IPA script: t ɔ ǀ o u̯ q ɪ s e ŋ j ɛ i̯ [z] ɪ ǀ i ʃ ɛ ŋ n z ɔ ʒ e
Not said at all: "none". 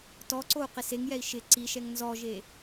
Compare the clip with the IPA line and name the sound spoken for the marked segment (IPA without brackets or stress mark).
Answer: ʃ